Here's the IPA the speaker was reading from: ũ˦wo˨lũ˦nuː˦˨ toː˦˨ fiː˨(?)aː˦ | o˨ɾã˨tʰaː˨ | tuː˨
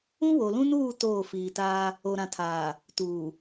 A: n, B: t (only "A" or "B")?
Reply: B